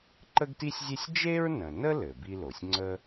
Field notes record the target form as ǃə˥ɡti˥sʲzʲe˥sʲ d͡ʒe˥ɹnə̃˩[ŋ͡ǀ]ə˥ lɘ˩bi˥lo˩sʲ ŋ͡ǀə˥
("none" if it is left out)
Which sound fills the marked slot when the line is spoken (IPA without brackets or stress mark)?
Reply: n